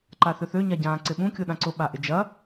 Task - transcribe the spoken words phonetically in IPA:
ǃaθʏθø ɲaɟãːǀɪɓũ kʲʊɗãǀʊ ɓaʔɪd͡ʒɐ

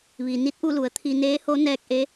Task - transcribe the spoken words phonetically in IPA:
ʋi˩ ni˧˥t̚ʔu˥˨lu˩˧ə̯ t̪ʰi˧ neː˧˥ho˧˥ nɛː˧k̚ʔe˧˥

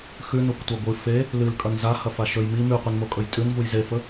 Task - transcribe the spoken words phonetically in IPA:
xʉnokʷtʷa ɡʷɨ fe | lɨlkʼɐn zahɐfa ʃɵj mi mʉqʷenmokʼɵj tʼʉnvuj zefɵ

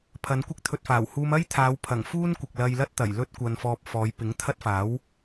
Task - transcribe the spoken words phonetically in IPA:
pʰɐ˨˧nkʷɪ˥k̚ t̪ʰɵ˨t̚faː˨˩whuː˧m ɐ˥jt̪ʰaː˨˧wpʰɐ˨˩ŋ fuː˥nkʷɪ˨k̚ lɐ˧jlɐ˥t̚t̪ɐ˨˩j lɵ˥t̚kʷɐ˧nfɔː˧p̚ fɔː˨˧j pɪ˨˥ŋt̪ʰɐ˥t̚ faː˨˥w

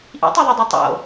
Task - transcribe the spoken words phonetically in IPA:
ʔḭtˤeðˤœdˤœ tˤo̰

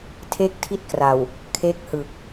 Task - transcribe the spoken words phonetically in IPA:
tʰe˥˩k̚tʰi˥˩t̚kra˨˩w | kʰe˦˥k̚hɯ˨˩k̚

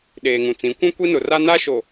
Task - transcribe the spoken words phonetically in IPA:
ɗeː˨ŋũ˨t͡sĩ˨˦ kʷũ˦kʷi˦nʊ˨ ra˦na˦ʃo˨

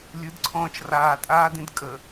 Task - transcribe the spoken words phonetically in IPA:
lʲɯdǀʰɔ̃ːt͡ʃ raːtʼaːdĩd kʼə

